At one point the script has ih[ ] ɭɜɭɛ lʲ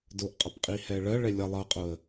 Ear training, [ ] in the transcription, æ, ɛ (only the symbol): ɛ